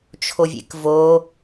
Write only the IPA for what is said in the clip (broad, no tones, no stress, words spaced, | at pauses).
t͡ʃʰovʲḛkvo